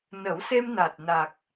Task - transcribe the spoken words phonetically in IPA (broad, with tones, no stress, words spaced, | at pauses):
nə˨˩˦wse˧mna˨˩t̚ na˨˩k̚